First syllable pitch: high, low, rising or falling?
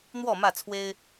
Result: falling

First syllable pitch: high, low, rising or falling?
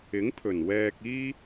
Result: rising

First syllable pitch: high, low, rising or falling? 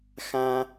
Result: high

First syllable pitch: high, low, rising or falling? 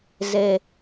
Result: low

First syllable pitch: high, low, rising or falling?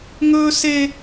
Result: high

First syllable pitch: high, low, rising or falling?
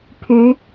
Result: rising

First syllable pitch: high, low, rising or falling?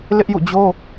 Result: high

